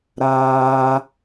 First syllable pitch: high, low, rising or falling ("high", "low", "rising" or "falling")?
high